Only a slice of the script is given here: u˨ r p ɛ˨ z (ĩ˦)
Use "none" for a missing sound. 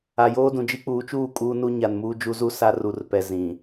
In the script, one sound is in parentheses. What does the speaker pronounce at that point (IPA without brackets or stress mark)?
ĩ˨